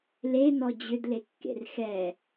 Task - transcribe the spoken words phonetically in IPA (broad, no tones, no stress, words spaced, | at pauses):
lenɔ d͡ʑʏdlekːḛr xɛ